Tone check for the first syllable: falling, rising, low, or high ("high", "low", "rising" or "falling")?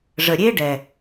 low